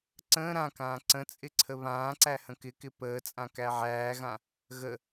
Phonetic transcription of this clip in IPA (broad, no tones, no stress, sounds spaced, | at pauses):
ǀ ə̃ː ɾ ã k ãː ǀ ə̃ t͡sʼ ɪ ǀʰ ə β ãː ǀ æ h ə̃ k ɪ k ɪ p əː t͡sʼ ã k æ ʕ æː ɣ ã | ɣ ə